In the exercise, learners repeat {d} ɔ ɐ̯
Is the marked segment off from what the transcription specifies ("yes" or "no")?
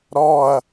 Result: yes